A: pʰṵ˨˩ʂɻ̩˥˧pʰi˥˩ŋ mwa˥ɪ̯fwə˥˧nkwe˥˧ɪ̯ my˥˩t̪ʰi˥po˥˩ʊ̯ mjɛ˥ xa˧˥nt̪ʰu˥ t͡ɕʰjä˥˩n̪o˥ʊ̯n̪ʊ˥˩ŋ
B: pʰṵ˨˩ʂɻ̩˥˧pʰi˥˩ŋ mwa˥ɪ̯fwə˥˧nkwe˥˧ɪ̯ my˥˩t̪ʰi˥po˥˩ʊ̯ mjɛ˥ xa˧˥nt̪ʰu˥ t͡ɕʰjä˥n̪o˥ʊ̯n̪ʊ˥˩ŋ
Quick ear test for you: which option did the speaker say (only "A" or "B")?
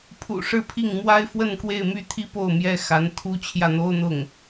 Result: A